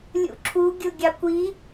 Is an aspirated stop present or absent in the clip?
present